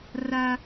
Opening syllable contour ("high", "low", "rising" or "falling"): high